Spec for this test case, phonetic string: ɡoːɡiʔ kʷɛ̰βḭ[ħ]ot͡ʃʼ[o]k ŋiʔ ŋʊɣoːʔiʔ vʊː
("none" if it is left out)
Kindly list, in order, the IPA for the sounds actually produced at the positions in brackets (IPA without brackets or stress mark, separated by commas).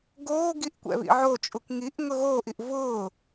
ʕ, u